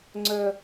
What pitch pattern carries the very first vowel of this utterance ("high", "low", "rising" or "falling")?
low